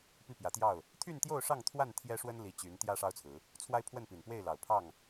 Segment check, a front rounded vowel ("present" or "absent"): present